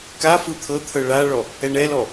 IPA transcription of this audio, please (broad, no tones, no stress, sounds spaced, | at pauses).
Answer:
k a f ɯ t̪ʰ ɤ t̪ʰ ɤ ɭ a ɭ ɔ | ɛ ɳ ɛ l ɔ